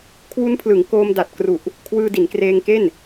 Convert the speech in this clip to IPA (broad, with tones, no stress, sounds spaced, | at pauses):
kʰ w u˦˥ n pʰ l ɯ˩˦ ŋ k oː˧ m d a˨˩ t̚ k r u˨˩ ʔ | kʰ w ɯː˧ d i˩˦ n k r eː˧ ŋ k e˥˩ n